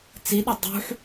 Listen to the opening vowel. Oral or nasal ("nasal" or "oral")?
oral